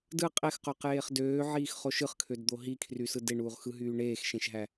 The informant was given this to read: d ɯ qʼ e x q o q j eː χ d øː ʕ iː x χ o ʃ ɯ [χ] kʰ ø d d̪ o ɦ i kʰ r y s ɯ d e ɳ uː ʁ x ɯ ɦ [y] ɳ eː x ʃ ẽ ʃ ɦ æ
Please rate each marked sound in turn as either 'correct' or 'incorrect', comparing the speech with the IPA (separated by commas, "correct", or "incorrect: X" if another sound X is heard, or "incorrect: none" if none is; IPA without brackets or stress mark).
correct, incorrect: yː